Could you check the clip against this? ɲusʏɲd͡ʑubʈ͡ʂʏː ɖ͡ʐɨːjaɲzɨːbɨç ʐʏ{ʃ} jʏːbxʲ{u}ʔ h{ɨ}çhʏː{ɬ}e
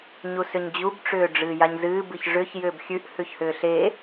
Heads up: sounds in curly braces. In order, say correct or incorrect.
incorrect, incorrect, incorrect, correct

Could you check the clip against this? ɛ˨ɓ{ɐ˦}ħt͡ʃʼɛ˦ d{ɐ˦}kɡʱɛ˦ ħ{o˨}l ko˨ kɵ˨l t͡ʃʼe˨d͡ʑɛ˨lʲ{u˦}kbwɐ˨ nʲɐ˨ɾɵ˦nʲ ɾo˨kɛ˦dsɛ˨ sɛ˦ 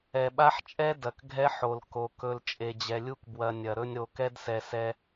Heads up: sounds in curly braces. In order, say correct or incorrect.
incorrect, incorrect, correct, correct

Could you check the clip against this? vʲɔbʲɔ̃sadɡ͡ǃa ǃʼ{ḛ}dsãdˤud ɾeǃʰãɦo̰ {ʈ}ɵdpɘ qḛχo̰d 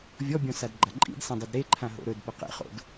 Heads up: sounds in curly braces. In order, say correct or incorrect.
incorrect, incorrect

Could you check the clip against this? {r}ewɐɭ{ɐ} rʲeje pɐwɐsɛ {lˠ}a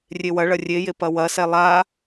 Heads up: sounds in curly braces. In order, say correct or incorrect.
incorrect, correct, correct

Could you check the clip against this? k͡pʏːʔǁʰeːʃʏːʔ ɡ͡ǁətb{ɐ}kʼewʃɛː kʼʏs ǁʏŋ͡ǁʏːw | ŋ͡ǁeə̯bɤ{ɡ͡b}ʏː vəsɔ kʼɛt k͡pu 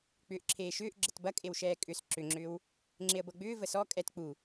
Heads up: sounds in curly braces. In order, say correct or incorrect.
correct, correct

